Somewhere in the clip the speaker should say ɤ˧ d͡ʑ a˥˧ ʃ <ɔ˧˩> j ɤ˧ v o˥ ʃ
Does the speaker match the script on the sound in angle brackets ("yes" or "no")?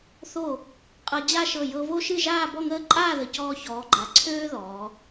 no